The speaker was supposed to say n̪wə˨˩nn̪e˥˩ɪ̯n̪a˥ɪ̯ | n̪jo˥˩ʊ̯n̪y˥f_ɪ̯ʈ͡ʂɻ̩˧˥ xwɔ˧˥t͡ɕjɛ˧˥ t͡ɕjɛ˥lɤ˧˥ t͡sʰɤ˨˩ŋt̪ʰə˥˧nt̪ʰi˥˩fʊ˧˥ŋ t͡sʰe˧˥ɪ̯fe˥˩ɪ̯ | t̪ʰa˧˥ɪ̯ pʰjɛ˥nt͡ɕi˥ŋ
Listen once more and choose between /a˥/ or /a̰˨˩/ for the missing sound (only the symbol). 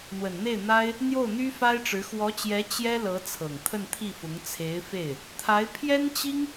a˥